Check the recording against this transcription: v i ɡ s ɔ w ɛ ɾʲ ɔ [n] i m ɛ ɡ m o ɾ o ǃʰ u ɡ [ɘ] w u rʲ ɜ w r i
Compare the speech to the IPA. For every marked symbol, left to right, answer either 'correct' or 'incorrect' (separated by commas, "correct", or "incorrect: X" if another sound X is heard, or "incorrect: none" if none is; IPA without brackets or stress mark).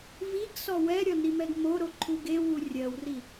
correct, incorrect: e